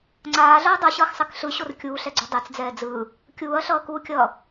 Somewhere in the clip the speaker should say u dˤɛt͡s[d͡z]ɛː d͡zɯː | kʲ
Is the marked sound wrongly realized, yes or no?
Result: no